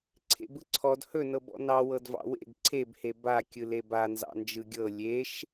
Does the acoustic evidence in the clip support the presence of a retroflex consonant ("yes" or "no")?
no